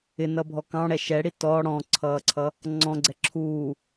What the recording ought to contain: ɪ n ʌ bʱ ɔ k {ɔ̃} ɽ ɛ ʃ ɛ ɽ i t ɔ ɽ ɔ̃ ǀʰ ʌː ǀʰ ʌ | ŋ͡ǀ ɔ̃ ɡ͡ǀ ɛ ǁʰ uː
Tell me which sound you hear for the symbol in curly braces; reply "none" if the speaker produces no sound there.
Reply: ɑ̃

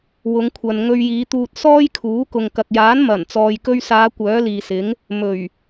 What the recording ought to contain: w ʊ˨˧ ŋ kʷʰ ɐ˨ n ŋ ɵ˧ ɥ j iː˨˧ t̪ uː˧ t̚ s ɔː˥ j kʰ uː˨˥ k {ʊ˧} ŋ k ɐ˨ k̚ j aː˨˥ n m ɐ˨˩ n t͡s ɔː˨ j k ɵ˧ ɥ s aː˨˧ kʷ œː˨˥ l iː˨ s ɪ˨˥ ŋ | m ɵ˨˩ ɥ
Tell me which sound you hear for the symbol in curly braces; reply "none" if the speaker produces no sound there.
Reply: ʊ˨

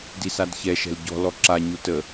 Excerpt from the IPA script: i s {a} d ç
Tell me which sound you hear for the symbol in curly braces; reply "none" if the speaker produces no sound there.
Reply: a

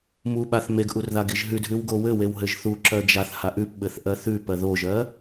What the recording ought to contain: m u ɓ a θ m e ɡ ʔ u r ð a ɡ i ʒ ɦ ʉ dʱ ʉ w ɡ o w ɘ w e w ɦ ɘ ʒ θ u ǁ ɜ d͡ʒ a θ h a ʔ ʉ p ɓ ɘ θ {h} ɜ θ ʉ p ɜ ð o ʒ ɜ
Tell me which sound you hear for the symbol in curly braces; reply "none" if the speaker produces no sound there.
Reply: ʔ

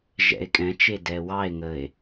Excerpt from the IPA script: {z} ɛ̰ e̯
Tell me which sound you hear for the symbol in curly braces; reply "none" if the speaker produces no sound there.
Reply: ʒ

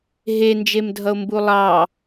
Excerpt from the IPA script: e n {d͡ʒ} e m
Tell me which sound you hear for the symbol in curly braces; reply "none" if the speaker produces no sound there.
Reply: d͡ʒ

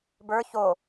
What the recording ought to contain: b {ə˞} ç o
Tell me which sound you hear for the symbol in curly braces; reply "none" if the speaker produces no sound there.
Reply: ə˞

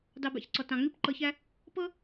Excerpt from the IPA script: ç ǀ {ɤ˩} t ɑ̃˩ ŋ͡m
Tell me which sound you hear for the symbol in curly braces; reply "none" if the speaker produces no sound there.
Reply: ɔ˩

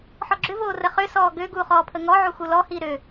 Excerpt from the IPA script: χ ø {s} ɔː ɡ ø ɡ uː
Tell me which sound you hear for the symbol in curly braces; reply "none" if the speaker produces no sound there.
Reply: s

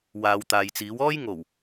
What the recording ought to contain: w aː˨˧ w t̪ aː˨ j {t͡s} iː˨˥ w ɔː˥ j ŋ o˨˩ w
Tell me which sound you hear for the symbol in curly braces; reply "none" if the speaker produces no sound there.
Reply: t͡s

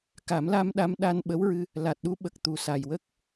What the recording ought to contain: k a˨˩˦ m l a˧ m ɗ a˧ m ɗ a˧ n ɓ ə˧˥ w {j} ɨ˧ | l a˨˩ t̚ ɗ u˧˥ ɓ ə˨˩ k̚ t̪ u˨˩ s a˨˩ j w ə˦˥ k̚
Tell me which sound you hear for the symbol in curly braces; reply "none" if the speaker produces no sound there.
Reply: ɹ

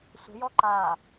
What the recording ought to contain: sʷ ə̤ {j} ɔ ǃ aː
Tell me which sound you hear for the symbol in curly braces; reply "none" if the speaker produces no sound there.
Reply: j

